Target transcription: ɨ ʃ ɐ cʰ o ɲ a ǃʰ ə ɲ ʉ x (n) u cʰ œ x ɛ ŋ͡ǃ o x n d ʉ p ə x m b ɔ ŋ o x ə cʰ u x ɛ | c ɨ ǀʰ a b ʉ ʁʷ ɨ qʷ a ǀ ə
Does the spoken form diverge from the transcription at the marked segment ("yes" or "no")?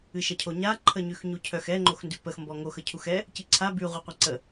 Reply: yes